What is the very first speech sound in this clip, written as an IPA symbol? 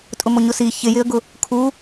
tʼ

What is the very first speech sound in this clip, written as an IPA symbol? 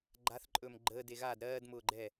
ɡ͡ǃ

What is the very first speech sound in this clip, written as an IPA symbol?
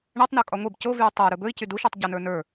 ɳ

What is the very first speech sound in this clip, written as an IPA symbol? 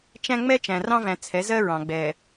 t͡ʃ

